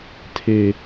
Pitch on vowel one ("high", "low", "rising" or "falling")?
low